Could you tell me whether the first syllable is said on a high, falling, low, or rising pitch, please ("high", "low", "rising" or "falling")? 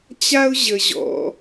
high